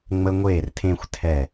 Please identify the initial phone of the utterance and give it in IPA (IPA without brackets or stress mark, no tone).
ŋ͡m